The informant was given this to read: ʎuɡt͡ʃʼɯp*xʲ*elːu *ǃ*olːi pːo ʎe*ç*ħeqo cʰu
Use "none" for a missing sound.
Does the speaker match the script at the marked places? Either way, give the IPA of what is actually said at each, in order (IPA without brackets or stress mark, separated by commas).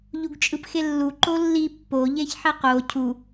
x, ǃ, ç